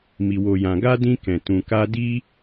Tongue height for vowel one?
high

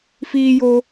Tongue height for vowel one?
high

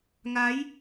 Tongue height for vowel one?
low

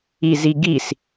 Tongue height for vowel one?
high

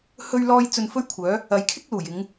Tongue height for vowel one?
mid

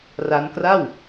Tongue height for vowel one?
low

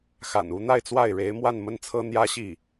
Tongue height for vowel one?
low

